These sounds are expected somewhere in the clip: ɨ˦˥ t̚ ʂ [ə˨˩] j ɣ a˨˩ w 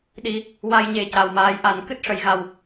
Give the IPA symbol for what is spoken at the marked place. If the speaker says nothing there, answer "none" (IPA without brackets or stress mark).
ə˨˩˨